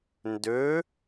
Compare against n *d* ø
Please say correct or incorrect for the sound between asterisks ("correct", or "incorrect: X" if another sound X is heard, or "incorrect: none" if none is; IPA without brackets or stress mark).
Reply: correct